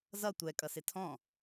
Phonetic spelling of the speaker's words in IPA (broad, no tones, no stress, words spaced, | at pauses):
zʌ tʷɛ kʼʌsɪtʰɔ̃